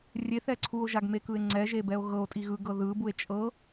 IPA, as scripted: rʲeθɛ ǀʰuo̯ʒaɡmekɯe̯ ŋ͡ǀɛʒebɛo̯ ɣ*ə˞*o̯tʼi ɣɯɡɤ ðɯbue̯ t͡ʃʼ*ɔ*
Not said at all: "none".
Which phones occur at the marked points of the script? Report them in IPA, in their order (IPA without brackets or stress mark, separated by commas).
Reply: ɤ, ɤ